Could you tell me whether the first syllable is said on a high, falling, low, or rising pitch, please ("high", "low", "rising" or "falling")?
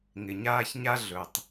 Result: low